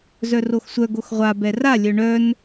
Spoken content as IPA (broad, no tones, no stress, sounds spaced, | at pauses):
z œ r o x sʷ œ ɡ o x ʁʷ a b ɛ r a lʲ œ ɳ œ n